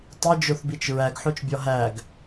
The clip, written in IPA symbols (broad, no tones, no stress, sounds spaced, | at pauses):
tˤ i d͡ʒ o θ b i t͡ʃ ɹ æ ɡ ħ o t͡ʃ bʲ ɒ ɦ æ ɡ